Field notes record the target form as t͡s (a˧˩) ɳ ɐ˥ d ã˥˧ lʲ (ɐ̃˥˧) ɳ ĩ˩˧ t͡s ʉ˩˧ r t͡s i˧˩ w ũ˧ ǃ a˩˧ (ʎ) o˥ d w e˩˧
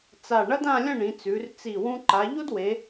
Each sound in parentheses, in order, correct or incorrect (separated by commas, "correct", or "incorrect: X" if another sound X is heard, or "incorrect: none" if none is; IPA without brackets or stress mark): correct, correct, correct